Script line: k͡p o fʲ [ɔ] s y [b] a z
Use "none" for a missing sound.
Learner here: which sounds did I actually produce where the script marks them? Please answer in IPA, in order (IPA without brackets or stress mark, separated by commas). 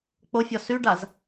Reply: ɔ, ɖ